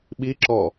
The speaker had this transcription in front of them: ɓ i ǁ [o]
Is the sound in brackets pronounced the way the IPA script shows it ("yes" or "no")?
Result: no